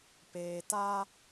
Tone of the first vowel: low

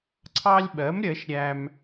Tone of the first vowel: high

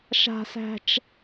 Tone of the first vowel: high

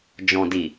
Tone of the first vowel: low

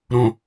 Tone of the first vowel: low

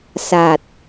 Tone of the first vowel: low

